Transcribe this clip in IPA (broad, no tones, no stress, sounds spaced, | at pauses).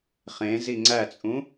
χ ẽ z i ŋ͡ǀ æ t͡sʼ ũ